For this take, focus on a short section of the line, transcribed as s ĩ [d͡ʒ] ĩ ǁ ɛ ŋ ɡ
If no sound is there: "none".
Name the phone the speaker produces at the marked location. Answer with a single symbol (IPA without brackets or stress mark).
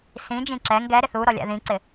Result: d͡ʒ